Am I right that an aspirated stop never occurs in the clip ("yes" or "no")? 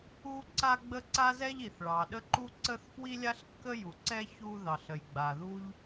yes